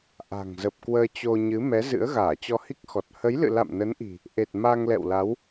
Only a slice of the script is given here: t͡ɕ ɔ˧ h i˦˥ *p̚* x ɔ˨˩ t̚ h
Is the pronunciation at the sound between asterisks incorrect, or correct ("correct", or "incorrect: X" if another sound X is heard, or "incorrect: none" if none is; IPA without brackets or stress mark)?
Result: incorrect: k̚